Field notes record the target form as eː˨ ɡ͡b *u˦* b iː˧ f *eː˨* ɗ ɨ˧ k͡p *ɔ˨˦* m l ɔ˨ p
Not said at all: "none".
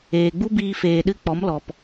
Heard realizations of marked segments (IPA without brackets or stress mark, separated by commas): u˦, eː˨, ɔ˨˦